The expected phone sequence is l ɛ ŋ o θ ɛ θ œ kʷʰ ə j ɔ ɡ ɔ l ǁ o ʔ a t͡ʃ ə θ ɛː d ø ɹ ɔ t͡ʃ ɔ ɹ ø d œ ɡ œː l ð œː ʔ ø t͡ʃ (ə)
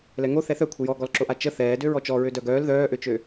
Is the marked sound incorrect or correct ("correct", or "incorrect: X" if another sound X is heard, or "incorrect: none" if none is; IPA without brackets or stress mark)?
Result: incorrect: ø